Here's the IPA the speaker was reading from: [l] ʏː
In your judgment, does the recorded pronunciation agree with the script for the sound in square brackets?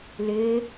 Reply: yes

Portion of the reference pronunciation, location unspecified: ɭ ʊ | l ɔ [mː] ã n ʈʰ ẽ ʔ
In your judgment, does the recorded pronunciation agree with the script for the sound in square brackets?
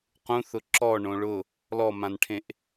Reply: no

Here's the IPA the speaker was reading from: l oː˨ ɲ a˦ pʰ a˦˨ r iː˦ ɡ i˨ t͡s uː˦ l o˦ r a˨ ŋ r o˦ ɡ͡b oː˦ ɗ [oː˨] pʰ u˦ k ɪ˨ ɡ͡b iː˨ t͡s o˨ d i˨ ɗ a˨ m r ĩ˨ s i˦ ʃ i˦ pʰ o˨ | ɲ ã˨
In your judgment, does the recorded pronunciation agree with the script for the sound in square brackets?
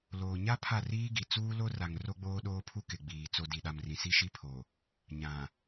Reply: no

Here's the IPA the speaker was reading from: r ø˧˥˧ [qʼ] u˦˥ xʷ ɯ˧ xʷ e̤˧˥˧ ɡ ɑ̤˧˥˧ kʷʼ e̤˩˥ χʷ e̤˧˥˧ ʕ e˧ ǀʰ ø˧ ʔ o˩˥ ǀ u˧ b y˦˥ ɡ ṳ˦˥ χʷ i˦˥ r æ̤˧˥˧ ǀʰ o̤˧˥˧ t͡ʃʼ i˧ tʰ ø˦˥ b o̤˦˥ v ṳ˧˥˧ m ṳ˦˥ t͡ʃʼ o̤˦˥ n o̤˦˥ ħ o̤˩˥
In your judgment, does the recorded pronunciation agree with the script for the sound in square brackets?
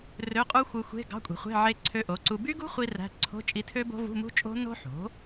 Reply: yes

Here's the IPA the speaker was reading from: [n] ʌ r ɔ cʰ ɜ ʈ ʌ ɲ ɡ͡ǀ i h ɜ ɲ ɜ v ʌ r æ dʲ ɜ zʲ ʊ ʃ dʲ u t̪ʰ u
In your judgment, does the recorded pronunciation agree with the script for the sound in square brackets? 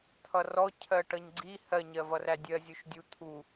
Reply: no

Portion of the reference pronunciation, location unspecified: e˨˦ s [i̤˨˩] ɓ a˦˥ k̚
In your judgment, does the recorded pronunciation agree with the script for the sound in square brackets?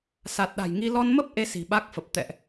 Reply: yes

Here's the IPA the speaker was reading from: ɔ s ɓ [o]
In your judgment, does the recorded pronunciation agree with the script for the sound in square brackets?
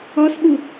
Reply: no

